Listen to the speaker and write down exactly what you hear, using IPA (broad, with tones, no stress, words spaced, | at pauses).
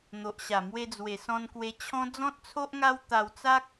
n̪o˨ʔɕa˨˩ mwe˧d͡zwe˨˩sɔ̃˧n kwe˧t͡ɕʰɔ̃˦ d͡zɔ̃˦t̚t͡sʰo˦ʔŋa˦w t̪a˧wt͡sa˦k̚